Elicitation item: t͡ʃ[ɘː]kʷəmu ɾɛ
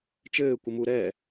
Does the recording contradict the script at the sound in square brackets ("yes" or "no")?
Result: no